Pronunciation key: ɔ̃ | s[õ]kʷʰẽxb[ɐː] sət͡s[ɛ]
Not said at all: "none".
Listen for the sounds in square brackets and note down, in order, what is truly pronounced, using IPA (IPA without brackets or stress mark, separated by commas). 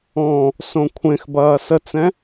õ, ɐː, ɛ̃